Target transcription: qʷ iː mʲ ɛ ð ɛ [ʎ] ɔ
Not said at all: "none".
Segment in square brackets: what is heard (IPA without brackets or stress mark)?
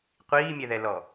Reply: l